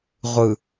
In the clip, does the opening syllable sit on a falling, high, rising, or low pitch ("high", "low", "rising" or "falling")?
low